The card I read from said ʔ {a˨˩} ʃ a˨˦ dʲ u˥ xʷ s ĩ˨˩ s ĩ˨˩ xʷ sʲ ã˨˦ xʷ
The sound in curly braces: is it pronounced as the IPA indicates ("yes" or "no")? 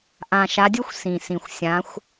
no